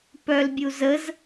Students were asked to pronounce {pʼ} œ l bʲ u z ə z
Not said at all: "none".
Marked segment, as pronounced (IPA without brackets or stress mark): p